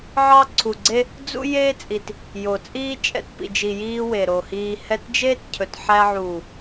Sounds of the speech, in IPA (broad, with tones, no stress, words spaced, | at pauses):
ʕɑ˦ǀʰu˨ɡ͡ǀe˦ | d͡zṵ˦ jeː˦t͡sʼi˨t | jo˨t͡sʼiː˦ t͡ʃʼɛ̰˧tpḭ˨d͡ʒi˨ jiː˦we˨ ɾo˨hiː˧hɛ˦t d͡ʒeː˦tcʰɵ˨tħæ˧ʕuː˨